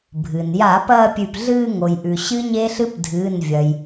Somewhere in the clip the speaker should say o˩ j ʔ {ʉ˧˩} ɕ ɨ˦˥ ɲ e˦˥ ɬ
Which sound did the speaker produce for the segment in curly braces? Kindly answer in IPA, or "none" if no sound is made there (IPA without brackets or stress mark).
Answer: ʉ˩